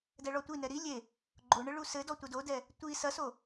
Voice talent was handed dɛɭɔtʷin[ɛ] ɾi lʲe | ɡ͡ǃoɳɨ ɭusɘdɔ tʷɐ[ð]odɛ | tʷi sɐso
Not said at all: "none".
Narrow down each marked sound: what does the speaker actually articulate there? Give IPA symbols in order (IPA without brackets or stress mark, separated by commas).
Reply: ɛ, d